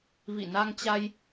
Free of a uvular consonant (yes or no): yes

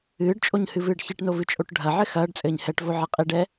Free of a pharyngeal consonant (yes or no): no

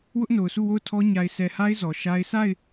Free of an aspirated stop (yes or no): no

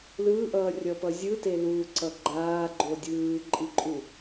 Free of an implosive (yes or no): yes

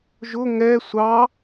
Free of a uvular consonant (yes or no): yes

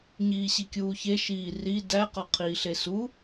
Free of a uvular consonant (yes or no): no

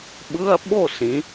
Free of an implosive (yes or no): no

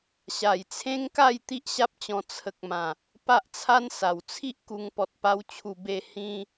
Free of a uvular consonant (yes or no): yes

